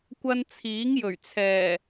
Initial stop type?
plain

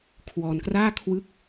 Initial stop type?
aspirated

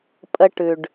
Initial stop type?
ejective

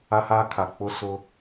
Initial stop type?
aspirated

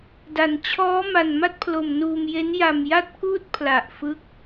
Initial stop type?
plain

